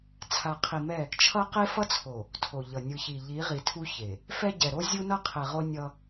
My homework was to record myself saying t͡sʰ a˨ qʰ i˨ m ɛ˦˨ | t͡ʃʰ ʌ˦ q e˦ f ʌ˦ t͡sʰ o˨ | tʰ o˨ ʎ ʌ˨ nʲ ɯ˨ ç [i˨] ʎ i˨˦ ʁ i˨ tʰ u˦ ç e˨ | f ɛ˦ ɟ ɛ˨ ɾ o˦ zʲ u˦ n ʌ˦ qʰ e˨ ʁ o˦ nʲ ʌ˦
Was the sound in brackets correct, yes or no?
yes